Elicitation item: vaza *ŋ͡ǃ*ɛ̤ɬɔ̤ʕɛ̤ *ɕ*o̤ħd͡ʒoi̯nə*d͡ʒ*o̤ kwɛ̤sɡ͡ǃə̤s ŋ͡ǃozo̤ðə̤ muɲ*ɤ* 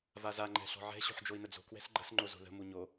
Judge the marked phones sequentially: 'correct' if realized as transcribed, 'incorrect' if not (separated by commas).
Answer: correct, correct, incorrect, incorrect